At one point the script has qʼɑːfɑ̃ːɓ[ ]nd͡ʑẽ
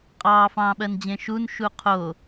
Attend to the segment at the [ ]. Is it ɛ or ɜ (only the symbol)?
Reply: ɜ